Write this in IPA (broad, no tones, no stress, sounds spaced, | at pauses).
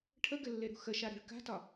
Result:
ʈʰ ə ɡ ɘ lː e ɾ ṳ x ə ʃ a ɾ ɛ̤ ɭ k a̤ t ɒ